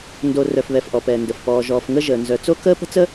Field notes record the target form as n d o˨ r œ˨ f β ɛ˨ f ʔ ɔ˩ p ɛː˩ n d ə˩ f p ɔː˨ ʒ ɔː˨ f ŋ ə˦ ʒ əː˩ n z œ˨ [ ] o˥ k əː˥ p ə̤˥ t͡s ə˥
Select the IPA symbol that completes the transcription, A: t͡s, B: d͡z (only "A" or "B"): A